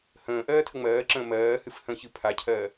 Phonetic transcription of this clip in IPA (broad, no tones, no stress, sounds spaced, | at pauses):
h ə̃ː ʔ ɜː tʰ ə ŋ͡m ɜː ǁ ə̃ː m ɜː h ɨ f h ə̃ ç ɨ pʰ a cʰ ɜː